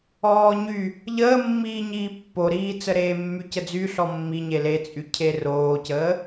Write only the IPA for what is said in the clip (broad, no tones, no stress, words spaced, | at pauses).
ɔːɲy | ʎəːmːiː ɲiːpːoɾiːt͡sə ɾeːmːycəd͡zy ɬɔmːiɲe let͡sʼy cʰeroːcəː